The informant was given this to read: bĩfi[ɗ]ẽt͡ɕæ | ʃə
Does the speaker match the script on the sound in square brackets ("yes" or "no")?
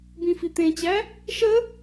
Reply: no